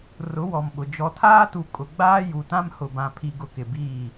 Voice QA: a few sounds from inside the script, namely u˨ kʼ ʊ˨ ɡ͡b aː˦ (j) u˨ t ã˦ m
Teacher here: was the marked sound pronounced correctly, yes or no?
yes